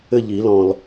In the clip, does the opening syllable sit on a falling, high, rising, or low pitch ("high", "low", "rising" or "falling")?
falling